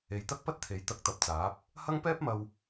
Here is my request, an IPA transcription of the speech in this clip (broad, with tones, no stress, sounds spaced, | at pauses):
e˨ j t̪ ɐ˥ k̚ p ɐ˥ t̚ t̪ʰ e˨˥ j t̪ ɐ˨˥ k̚ t̪ ɐ˨ p̚ t͡s aː˨˥ p̚ | h ɐ˧ ŋ p ɛː˥ p̚ m ɐ˧ w